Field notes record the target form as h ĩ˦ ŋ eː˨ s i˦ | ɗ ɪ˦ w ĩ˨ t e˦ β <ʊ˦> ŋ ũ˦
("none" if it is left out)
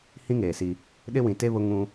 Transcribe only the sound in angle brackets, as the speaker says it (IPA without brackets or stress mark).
ʊ˦